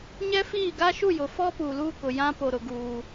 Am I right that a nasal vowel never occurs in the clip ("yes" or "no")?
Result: no